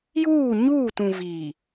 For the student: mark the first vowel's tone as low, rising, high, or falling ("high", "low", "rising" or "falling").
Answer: falling